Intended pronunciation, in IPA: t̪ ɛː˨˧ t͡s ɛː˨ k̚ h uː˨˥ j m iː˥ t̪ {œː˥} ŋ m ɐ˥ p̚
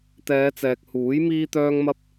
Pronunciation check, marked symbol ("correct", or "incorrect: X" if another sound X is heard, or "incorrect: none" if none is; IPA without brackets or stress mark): correct